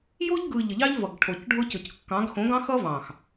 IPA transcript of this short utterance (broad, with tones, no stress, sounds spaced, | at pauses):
j o˦ ʎ ɡ ɯ˨ ʎ ə˨ ʎ ɑ˦ ʎ v ʌ˨ ɡ ʈʰ o˨ c ɖʱ ʊ˦ c ʊ˨ c kː ɑ̃˨˦ ɡ x õ˨˦ ɡ ɑ̃˦ x ʌ˦ v ɑ̃˨ x